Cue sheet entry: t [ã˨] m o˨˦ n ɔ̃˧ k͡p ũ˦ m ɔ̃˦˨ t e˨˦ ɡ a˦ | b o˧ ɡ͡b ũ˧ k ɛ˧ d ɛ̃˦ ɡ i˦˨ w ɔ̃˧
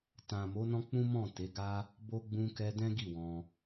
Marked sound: correct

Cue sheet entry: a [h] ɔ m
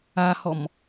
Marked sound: correct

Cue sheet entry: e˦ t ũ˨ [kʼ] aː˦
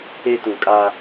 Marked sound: correct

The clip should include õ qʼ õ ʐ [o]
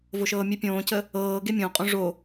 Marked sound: correct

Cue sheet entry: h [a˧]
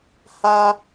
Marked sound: correct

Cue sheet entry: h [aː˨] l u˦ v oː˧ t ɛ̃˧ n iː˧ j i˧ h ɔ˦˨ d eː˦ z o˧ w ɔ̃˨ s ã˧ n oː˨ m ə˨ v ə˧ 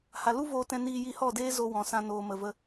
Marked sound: incorrect: a˨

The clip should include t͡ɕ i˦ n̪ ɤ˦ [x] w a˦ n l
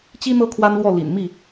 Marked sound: incorrect: kʰ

